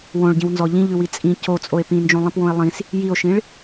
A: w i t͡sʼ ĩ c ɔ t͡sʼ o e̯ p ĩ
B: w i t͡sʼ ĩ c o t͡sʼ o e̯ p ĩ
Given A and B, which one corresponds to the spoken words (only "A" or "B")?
B